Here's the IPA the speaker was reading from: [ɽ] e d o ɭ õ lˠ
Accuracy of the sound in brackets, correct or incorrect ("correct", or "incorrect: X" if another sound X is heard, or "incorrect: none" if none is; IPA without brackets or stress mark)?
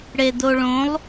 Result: correct